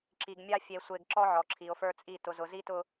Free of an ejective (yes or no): no